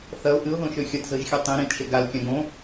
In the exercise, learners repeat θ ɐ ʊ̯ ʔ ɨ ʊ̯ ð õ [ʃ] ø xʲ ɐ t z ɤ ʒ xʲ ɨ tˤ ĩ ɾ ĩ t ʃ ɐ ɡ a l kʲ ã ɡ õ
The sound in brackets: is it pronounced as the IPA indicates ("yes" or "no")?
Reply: yes